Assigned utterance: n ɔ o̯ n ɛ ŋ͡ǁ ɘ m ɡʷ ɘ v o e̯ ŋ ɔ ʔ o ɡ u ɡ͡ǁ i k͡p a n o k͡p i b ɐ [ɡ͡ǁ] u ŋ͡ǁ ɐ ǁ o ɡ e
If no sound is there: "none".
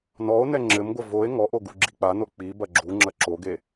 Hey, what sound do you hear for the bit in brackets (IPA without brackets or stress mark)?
ɡ͡ǁ